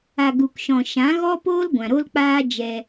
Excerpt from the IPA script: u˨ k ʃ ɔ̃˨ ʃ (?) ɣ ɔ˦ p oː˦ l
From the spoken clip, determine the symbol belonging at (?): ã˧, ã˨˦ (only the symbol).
ã˨˦